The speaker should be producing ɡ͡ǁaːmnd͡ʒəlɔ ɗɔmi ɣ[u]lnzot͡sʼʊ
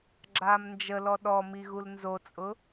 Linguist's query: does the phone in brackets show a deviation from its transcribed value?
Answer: no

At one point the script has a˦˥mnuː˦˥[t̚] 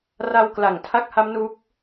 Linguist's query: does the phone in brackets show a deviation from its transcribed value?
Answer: yes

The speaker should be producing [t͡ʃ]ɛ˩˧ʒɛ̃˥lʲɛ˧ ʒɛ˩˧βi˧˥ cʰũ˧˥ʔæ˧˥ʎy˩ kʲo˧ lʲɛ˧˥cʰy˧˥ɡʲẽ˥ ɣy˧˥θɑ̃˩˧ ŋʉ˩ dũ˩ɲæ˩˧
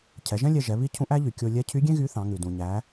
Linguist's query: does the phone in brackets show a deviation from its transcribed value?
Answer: yes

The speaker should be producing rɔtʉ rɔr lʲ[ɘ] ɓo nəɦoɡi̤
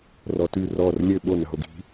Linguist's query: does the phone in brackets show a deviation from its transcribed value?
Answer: no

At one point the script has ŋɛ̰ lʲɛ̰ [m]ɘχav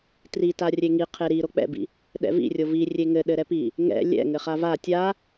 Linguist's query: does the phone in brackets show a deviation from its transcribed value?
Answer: yes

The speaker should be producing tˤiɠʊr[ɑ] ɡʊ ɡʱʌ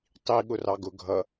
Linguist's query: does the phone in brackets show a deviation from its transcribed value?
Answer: no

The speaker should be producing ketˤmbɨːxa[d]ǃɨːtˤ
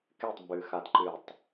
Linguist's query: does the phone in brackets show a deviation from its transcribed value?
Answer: no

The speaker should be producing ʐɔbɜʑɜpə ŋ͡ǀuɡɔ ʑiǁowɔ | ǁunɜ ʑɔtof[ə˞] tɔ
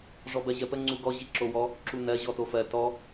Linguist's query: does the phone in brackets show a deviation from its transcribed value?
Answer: yes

